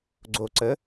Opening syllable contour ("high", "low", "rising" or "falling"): low